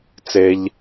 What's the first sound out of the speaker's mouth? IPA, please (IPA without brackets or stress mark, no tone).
t͡s